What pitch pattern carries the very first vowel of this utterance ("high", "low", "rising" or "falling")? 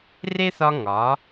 high